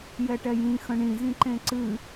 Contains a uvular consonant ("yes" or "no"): no